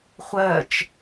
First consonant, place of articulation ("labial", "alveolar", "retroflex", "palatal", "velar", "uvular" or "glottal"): uvular